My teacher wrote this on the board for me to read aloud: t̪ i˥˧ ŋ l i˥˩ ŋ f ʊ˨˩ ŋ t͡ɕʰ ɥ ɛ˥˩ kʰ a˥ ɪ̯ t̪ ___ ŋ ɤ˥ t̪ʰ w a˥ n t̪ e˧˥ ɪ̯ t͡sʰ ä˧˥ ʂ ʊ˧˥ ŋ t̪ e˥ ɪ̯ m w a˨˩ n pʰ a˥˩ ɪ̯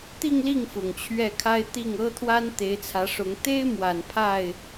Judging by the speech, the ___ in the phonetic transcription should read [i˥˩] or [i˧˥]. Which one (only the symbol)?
i˥˩